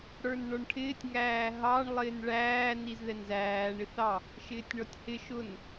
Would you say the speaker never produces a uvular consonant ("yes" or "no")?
yes